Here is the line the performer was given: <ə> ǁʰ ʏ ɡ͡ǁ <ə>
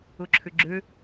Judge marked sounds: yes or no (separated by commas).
no, no